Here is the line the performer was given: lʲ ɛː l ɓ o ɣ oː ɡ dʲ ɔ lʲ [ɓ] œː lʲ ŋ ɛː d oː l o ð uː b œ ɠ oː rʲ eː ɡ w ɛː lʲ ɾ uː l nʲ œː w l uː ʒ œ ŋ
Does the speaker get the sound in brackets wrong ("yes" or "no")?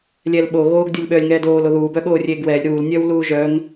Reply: no